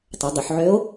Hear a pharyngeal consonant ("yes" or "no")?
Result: yes